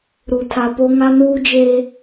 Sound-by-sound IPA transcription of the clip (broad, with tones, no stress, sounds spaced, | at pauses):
ɾ u˨ tʰ a˨ p o˦ ŋ a˦ n uː˦ d͡ʒ e˦